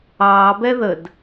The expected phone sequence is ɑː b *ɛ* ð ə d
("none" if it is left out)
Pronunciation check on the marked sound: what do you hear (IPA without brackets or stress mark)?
ɛ